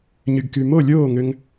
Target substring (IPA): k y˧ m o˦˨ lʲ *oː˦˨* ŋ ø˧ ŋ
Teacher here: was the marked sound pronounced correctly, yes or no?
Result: yes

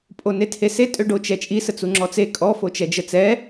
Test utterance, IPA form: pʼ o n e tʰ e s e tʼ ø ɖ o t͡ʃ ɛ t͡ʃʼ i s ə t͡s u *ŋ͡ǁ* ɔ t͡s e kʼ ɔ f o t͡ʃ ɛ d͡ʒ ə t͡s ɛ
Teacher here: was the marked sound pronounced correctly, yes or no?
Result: yes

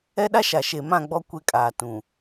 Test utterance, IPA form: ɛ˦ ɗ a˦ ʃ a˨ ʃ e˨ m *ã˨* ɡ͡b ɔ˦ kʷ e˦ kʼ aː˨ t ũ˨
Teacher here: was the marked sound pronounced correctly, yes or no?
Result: no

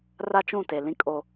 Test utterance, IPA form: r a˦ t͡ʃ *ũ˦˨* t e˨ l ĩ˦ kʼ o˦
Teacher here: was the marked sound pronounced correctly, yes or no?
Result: yes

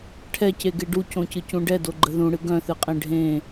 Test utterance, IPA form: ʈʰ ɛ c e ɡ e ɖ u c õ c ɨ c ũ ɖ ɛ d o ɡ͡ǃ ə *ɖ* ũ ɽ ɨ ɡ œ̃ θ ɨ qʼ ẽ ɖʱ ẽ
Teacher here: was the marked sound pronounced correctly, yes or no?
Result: no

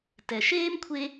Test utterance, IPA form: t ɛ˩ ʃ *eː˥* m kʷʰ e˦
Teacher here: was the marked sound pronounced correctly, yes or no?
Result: yes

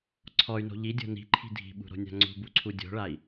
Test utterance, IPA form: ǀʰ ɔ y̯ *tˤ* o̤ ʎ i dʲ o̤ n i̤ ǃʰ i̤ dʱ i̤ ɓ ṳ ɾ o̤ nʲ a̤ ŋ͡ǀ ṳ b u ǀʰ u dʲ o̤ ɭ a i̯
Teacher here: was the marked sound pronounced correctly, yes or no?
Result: no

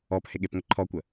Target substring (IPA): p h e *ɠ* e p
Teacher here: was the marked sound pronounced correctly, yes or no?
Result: yes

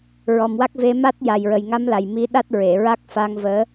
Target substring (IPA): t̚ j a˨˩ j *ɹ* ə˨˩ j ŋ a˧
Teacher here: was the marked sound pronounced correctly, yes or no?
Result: yes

